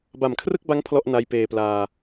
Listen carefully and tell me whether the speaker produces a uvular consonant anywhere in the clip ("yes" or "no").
no